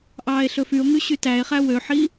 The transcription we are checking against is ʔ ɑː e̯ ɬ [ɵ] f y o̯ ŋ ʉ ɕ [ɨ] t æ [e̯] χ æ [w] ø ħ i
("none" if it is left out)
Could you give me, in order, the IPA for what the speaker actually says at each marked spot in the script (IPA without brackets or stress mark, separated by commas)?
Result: ɵ, y, e̯, w